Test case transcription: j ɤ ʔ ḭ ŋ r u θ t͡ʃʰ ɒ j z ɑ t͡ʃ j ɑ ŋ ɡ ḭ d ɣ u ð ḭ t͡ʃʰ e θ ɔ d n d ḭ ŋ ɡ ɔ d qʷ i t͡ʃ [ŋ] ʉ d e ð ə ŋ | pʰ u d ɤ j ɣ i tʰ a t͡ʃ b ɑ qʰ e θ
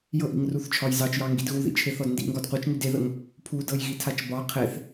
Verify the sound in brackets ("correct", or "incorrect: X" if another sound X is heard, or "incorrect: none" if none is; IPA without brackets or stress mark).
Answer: correct